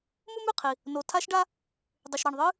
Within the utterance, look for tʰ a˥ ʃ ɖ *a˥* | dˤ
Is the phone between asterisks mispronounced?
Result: no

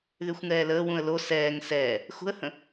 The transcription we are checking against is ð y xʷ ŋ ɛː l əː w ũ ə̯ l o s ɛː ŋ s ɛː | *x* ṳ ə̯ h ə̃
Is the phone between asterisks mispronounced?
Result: no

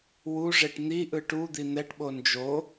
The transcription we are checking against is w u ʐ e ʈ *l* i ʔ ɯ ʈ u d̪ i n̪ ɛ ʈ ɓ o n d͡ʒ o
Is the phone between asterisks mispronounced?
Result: yes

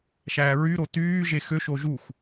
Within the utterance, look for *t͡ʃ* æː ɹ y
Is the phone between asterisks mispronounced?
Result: yes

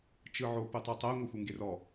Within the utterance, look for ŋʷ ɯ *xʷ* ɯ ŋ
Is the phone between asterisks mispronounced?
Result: no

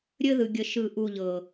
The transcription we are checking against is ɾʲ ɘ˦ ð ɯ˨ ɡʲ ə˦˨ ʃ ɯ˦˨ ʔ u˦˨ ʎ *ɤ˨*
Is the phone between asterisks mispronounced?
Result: no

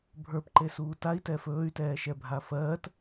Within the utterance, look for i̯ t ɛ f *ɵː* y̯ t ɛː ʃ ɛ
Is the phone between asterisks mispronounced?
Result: no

